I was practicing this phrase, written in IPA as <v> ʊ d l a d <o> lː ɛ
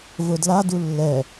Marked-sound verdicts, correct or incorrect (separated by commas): correct, incorrect